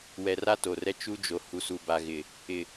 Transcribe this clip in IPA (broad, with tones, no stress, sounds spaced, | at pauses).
w ɛ˨ r a˦ t o˨ r ɛ˦ t͡ʃ u˦ d͡ʒ o˨ h u˨ s u˨ b a˨ ɣ ɪ˨ | ɪ˨